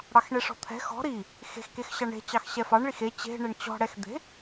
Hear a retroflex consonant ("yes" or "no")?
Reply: yes